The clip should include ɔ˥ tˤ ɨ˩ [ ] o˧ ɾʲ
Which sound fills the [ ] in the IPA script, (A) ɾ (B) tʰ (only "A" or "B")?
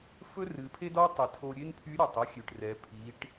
B